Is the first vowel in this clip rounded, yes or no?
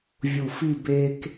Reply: yes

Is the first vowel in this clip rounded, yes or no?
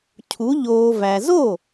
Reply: yes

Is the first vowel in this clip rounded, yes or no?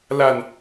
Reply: no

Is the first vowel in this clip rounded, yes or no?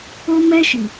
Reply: yes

